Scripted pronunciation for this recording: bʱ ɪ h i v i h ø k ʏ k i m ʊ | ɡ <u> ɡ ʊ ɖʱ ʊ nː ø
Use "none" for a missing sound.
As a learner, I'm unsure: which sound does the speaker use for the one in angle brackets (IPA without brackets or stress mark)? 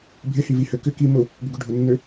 ʏ